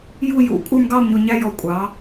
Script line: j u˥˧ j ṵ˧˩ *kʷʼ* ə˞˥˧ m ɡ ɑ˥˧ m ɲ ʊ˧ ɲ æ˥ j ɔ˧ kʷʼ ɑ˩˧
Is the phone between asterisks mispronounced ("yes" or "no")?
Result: no